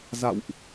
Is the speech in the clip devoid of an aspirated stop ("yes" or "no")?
yes